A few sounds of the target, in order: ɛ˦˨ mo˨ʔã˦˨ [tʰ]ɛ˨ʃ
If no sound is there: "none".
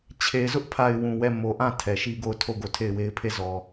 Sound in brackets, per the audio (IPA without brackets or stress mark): tʰ